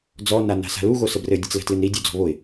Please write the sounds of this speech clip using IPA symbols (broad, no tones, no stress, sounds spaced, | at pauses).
d͡z ɔ n a n a̤ s a̤ l u ɣ o s ə b r ɘ dʲ ɘ t͡s l ə̤ t l ɨ n ɾ i dʲ o d͡z ɔ̤ β o ɪ̯